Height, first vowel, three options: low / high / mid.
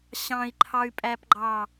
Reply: low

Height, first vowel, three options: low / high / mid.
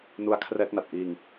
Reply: high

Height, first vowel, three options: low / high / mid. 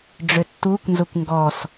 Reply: mid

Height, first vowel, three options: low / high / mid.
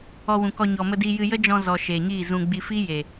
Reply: mid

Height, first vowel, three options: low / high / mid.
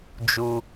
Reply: high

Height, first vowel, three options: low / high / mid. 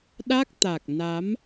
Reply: low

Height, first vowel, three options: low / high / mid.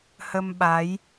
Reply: mid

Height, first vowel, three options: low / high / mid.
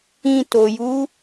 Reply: high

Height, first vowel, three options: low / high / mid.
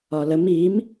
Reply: low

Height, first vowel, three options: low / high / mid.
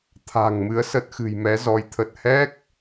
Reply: low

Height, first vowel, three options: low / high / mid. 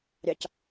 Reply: low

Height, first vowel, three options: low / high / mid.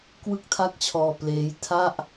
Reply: high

